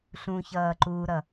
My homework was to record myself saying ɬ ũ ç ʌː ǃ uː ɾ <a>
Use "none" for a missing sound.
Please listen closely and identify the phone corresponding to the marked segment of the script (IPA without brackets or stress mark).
ʌ